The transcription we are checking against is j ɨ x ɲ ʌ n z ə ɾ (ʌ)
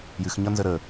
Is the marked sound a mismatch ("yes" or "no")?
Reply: yes